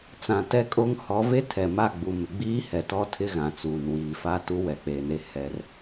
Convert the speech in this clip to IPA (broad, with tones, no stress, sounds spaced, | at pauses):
t͡s ã˨ t ɛ˦ kʼ o˦ ŋ h ɔ˨˦ v e˦ tʰ ɛ˨ m a˦˨ ɡ͡b u˨ m ɪ˨ ɡ͡b iː˦ h ɛ˨ t ɔ˦ tʰ ɪ˦ ɣ ã˨ t͡s uː˨ n w iː˨ f a˦ t u˦ w ɛ˨ k͡p e˨ n e˦ h ɛ˦ r